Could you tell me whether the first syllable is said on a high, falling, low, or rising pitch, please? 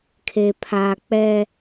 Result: low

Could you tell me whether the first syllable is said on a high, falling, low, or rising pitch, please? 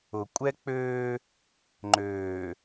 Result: low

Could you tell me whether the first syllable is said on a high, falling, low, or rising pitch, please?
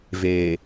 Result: low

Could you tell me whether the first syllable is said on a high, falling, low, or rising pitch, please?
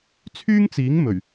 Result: high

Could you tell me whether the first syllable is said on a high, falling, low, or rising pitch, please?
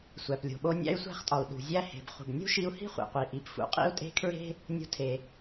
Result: low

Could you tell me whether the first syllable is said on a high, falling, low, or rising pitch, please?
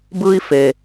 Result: high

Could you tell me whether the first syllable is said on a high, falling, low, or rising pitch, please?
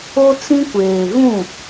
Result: high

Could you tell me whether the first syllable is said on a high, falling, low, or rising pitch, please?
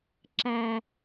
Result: low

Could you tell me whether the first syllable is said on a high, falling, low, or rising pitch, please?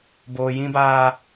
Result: low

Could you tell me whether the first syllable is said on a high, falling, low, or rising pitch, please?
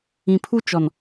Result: low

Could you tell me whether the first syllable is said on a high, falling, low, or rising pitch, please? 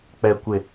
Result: low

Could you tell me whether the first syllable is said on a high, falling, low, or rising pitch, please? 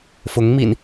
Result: rising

